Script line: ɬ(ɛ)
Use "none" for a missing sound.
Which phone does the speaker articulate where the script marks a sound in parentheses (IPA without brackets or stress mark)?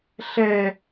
ɛ